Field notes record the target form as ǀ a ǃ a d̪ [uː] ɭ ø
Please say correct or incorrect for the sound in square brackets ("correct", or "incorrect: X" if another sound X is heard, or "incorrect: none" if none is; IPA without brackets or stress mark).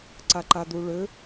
incorrect: u